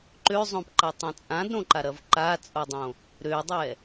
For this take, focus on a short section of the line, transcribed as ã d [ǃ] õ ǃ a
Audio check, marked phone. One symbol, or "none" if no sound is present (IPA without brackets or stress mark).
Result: ɾ